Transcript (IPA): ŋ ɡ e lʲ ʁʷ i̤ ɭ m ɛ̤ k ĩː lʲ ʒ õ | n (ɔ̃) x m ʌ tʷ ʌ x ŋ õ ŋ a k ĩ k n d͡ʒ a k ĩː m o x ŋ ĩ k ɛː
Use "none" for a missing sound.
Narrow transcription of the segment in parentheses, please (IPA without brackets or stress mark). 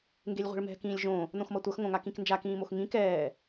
õ